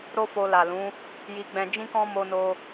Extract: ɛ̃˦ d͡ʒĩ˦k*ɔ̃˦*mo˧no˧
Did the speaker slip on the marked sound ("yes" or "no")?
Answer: no